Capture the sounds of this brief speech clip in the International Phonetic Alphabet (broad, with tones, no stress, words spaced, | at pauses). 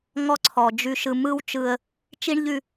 ŋɔ˦ǀʰɔ˨ d͡ʒʉ˨ʃɯ˨ mɯ˦w t͡ʃɯ˦ə̯ | t͡ʃi˦ɳʎʉ˦